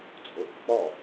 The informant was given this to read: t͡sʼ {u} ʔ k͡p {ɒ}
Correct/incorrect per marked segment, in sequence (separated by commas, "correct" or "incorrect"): incorrect, correct